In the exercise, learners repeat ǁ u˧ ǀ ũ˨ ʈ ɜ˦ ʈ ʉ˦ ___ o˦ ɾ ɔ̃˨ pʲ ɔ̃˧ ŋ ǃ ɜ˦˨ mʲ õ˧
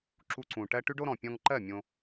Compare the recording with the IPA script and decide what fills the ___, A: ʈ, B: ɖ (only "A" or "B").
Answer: B